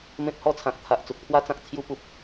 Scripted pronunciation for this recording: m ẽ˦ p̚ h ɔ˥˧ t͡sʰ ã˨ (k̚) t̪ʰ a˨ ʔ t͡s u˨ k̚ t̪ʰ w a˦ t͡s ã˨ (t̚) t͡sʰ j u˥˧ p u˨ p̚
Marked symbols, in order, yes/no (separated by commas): yes, no